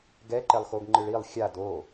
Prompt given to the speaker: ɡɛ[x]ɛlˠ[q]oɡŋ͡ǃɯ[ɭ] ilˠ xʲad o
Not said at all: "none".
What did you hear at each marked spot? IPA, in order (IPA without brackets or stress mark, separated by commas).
ǃ, x, ɭ